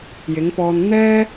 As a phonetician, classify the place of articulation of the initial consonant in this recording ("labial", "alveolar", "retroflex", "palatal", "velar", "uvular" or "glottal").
palatal